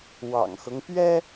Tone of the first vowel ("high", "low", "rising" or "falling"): low